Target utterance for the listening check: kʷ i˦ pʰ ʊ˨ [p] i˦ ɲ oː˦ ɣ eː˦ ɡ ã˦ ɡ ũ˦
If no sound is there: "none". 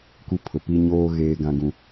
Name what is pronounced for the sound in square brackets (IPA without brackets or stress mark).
p